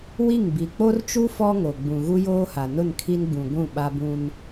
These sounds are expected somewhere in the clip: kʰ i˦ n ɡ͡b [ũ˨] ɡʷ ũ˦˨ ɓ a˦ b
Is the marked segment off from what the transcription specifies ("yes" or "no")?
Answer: no